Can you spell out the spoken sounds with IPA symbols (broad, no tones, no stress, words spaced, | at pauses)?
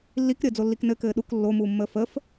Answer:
lːikɾʲəːd͡zolːik nɘkɘː ɗuk lːomuːmːəː fəf